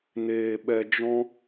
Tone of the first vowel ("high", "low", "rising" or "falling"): low